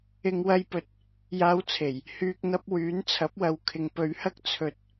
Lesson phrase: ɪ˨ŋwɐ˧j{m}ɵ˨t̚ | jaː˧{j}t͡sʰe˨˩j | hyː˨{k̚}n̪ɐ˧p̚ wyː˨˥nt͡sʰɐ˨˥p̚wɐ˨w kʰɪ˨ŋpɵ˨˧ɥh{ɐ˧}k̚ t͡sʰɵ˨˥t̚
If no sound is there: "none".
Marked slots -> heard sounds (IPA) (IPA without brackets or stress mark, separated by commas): p, w, k̚, ɐ˥